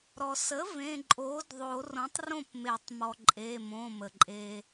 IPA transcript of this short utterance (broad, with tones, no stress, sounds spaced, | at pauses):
ɾ ɔ˩ s ə˩˥ v ẽ˩˧˩ ǃʼ oː˩˥ d ðˤ o˨˩˦ r õ˩˥ tˤ r õ˥˩ p m e˨˩˦ tˤ m ɔ˩ ǃʼ e˩˧˩ m õ˩˧˩ m ə˩ ǃʼ e˩